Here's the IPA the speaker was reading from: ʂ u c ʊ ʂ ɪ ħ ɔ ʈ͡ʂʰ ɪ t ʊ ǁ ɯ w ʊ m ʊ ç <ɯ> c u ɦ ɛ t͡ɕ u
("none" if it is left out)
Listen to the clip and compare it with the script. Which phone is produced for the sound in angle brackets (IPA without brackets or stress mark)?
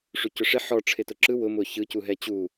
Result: ɯ